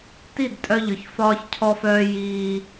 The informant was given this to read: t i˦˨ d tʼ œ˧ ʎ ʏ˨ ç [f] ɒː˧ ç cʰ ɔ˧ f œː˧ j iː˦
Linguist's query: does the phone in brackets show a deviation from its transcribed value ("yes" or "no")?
no